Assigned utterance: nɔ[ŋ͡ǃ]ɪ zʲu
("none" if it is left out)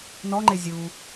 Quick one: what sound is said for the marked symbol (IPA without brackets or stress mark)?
ŋ͡ǃ